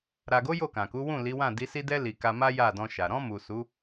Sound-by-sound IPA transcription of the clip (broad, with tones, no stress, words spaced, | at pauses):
ɾa˨ɡo˨˦ jo˦˨kã˨ku˨˦wũ˦˨ li˨˦wã˦˨di˨˦ si˧dɛ˧li˨ ka˧ma˦ ja˦˨dɔ̃˧ʃa˨ ɾɔ̃˧mu˨ su˨˦